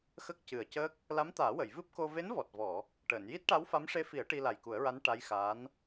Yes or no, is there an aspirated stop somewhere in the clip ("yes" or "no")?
no